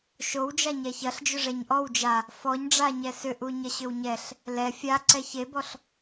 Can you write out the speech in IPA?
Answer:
ʃ o w d͡ʒ a ɲ ɛ ç ɐ ɬ d͡ʒ ʏ ʐ ɛ ɲ ʔ ɔ w d͡ʒ a | f ɔ ɲ ɖ͡ʐ a ɲ ɛ s ʏ ʔ u ɲ ɐ ɕ ʏ w ɲ ɛ ɬ | l ɛ fʲ a ǀ ɛ ç e b ɔ ɬ

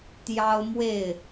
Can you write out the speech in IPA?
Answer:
t̪ j ɑ˦ ʊ̯ m w e˥˨ ɪ̯

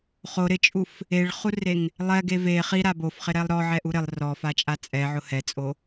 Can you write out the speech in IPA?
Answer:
χ o ɾ ɪ t͡ʃʼ u f | e ɭ χ u r e ŋ | lˠ ɛ ɡ e v e χ i ɾ a b o f χ ɪ ɾ ɛ lˠ ɾ ɔ ʕ ɛ ʔ u ɾ ɪ lˠ r ɔ f a t͡ʃʼ a t͡sʼ ɛ ʕ ʊ h ɛ t͡sʼ o

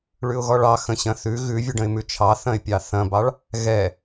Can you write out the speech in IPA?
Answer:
ɭ ʉ ʊ̯ ɣ ɔ ɭ ɑ x ə̃ ɕ ɐ̃ θ ʉ ɣ ʉ vʲ ʉ ɖ ə̃ ɪ̯ m ʉ t͡ʃʰ ɑ θ ɐ̃ ɪ̯ pʲ ɑ θ ɐ̃ b ɑ ɭ | ɣ ɛ

